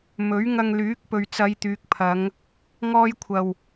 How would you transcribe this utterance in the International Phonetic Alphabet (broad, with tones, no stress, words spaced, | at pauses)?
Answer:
mɵ˨˥ɥŋɐ˧ŋlyː˨˥k̚ pɵ˨ɥt͡sɐ˨˧jt̪yː˨k̚pʰɐ˨˧ŋ | ŋɔː˥jkʷʰɐ˧w